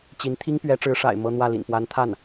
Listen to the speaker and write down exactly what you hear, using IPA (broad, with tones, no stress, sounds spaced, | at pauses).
t͡ɕ i˧˥ n t̪ʰ i˥ ŋ p ɥ ɛ˧˥ ʈ͡ʂ ɻ̩˧˥ ʂ a̰˨˩ ɪ̯ m ɤ˥ n̪ w ä˥˩ l ḭ˨˩ n p w a˧˥ n t̪ʰ a˥˩ n